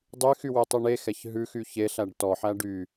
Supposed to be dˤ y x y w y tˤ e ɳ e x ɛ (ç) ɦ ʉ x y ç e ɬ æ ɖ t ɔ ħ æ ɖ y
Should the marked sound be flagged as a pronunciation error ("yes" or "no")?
no